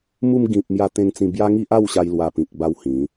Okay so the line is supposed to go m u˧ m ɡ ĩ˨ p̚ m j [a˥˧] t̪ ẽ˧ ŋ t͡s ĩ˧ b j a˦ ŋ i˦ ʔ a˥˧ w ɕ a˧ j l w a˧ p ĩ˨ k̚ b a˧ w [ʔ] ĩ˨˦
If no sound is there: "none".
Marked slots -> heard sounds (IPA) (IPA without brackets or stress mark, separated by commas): a˧, h